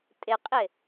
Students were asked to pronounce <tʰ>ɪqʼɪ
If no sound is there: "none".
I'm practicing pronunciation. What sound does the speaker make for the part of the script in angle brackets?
tʼ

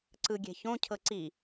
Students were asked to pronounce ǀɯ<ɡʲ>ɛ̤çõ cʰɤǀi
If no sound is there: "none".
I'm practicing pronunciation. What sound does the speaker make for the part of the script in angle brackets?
ɡʲ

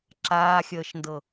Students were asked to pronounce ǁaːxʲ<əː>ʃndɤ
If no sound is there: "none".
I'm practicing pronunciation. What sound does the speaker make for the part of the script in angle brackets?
əː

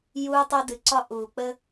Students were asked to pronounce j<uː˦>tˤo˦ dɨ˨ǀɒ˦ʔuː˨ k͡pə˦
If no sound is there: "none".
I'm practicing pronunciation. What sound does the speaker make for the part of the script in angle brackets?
uː˦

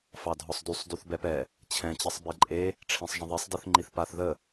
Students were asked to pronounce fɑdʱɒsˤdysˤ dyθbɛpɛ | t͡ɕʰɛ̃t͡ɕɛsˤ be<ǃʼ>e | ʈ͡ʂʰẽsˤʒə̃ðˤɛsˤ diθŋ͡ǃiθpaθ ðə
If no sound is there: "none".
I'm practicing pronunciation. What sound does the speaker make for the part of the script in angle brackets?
ǃʼ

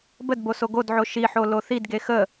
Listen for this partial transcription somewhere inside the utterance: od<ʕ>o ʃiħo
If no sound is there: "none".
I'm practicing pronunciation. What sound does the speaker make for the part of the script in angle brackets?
ʕ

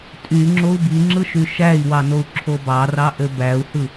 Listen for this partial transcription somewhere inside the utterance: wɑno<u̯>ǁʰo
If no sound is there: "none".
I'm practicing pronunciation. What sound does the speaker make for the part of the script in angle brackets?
u̯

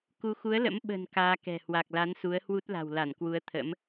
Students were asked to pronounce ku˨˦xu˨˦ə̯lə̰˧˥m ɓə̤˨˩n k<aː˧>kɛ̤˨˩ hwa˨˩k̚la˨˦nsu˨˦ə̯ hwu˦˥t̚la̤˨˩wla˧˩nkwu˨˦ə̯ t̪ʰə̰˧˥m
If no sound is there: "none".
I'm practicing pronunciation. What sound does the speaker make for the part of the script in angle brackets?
aː˧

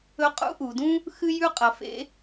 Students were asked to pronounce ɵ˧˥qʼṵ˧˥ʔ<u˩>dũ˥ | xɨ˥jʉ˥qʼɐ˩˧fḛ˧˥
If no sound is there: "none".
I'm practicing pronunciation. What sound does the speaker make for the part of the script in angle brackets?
u˩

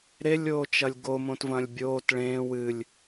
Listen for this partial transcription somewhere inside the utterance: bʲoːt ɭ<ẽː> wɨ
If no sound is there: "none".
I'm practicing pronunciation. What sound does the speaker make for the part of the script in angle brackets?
ẽː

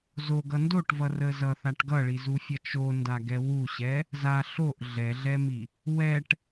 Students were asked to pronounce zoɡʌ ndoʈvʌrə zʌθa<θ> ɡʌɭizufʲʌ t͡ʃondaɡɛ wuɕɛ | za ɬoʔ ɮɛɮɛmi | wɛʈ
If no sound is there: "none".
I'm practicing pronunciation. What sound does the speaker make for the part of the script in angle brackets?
ʈ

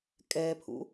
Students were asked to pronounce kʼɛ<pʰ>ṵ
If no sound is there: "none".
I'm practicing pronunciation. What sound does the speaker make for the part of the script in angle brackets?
pʰ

